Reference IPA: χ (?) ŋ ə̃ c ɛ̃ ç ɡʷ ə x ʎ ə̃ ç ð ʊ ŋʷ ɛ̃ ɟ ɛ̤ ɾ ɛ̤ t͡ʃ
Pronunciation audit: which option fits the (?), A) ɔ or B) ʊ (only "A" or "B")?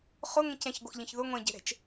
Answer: B